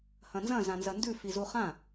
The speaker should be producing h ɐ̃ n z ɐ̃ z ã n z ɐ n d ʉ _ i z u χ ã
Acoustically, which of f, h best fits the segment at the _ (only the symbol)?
f